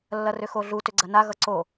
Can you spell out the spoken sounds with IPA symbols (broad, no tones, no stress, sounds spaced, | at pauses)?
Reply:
lː ɐ r ʏ x o ɮ u t ʏ ɡ͡ǀ ɐ n a ɣ ʌ ǀ o